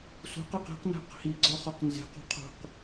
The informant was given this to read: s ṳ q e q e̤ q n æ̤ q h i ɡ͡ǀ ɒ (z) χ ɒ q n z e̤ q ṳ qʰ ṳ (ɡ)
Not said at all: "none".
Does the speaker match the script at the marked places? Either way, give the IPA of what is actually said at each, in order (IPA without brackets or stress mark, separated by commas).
none, q